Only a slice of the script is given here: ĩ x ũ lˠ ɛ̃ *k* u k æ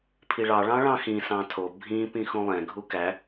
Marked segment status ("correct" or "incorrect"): incorrect